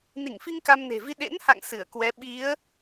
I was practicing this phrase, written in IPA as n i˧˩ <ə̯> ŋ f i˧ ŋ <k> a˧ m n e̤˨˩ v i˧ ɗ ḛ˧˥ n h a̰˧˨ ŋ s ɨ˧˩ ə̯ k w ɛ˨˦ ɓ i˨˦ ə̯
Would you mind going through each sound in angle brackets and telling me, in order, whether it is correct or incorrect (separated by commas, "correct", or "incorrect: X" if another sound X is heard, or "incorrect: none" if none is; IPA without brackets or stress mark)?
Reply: incorrect: none, correct